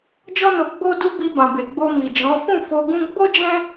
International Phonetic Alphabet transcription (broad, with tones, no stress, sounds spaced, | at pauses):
d͡ʒ ɔ˦ n o˧ ɡ͡b o˦ d u˦ b i˧ b ã˨ b e˨ ɡ͡b o˧ m i˨ d͡ʒ ɔ̃˨˦ f ũ˦˨ f o˧ ɡ ũ˦ ɡ͡b o˦ d͡ʒ ɛ̃˦